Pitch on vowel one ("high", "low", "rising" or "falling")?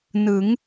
rising